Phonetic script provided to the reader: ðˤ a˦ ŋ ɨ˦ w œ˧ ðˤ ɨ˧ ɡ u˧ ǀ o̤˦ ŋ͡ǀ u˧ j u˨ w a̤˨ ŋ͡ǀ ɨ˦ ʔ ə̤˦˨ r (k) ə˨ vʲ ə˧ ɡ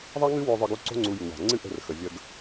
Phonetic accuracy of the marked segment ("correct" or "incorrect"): incorrect